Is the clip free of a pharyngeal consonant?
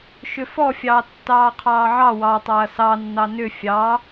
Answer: no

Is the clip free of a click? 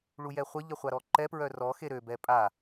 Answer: no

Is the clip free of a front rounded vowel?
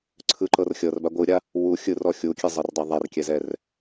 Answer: yes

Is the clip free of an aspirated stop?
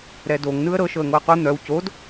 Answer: yes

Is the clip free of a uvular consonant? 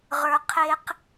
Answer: no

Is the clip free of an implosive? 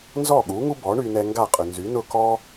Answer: no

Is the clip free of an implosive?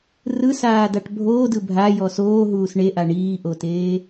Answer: yes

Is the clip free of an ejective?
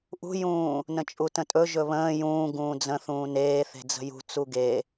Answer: no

